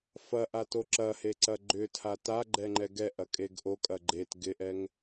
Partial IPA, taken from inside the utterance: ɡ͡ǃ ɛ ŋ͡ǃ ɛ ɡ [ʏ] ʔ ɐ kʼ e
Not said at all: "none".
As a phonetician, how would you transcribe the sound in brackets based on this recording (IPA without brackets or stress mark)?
ɛ